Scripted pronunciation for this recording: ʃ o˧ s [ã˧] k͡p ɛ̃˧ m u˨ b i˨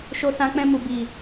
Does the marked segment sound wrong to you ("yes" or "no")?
no